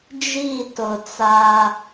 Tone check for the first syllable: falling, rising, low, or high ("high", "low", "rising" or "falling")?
falling